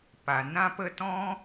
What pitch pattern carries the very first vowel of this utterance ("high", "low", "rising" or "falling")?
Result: low